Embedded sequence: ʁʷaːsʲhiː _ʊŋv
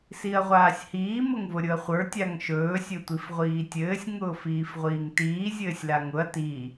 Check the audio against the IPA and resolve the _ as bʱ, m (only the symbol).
m